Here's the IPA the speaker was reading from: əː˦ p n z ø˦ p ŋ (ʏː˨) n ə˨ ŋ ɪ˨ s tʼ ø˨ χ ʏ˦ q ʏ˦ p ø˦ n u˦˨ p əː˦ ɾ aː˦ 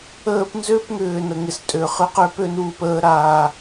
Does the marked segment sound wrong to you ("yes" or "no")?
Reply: no